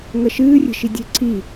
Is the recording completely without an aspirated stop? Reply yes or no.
no